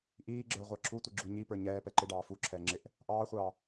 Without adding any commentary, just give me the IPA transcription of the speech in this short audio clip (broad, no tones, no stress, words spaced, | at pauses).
ʔiːɡ͡ǁə˞ ʁʷɑǁʰutʷi ɡ͡ǁuɲipə˞ ɲɛː pɛǃɪɖɑː fuǁʰɛː ŋ͡ǁɪʔ | ʔɑːχʷɑː